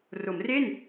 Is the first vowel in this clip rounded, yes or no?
yes